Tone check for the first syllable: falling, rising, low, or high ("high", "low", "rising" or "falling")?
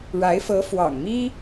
rising